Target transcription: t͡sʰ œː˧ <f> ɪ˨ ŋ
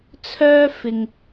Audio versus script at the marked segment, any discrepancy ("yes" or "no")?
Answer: no